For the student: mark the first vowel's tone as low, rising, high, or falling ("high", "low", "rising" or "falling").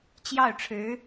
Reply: falling